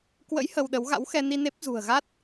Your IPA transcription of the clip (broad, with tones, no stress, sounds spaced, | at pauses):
k w ə̰˧˥ j h ə˧ w ɗ ə˨˦ w ɣ a̰˧˥ w x ɛ˧ n i˧ n e˦˥ p̚ z ṳ˨˩ ə̯ ɣ a˦˥ t̚